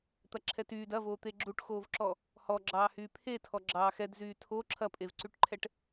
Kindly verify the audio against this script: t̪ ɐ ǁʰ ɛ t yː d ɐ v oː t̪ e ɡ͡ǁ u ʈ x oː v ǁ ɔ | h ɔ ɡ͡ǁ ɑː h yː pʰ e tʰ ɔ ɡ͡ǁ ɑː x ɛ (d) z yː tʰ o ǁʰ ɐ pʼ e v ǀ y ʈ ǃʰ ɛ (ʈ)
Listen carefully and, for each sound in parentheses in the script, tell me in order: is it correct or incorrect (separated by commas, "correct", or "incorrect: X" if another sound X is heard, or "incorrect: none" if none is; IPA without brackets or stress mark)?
correct, correct